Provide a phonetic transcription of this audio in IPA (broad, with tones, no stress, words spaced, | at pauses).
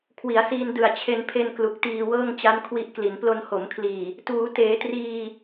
kʰwi˩˦a̯siː˧ndɯ˨˩a̯ t͡ɕʰe˧npʰe˧n klu˨˩k̚tiː˧wɤː˥˩ŋ t͡ɕa˦˥nkʰwi˦˥ʔkli˩˦n plo˧nho˩˦mkʰliː˨˩ | tuː˩˦teː˩˦triː˧